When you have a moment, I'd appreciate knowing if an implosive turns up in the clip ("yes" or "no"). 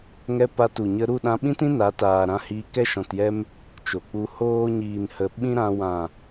yes